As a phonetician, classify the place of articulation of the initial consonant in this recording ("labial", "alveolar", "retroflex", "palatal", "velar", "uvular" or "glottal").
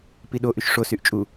labial